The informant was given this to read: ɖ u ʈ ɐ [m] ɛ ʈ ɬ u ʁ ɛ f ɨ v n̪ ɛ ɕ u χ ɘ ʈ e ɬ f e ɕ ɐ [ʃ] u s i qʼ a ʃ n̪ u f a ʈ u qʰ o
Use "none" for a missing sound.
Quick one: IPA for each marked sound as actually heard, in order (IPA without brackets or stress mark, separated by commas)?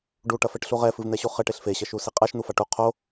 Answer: f, ʃ